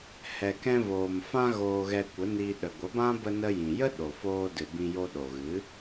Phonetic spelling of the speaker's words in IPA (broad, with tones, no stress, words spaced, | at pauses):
hɛ˧kɛ̃˦ voː˨mfã˧ ɣoː˧ɣɛ˧kʷə˨˦niː˧ ɗə˨ɡʷə˨˦bã˦ bə˧nə˧jĩ˨jə˦ ɗo˨foː˧dɨ˨ bĩ˧jo˧ ɗo˨ɣɨ˨˦